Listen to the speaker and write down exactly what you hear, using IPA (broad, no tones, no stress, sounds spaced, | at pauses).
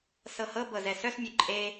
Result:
s ɤ h ɤ b ɤ z ɛ s œ s mʲ u ǃʼ e